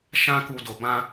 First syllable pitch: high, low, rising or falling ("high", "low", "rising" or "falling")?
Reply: high